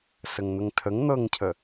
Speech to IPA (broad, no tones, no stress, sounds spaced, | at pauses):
s ə ŋ n̪ ə ŋ tʰ ə ŋ n̪ ɤ ŋ cʰ ə